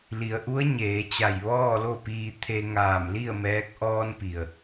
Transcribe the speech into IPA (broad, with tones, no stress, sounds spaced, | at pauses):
l i˩˧ ə̯ ʔ u˧˥ ə̯ ɲ eː˩˧ t͡ɕ a˧˩ j ʋ ɔː˥˨ l o˥˨ p iː˧ t̪ʰ e˧ ŋ aː˧˩ m l i˥˨ ə̯ m ɛː˧˥ k̚ ʔ ɔː˧ n p i˩ ə̯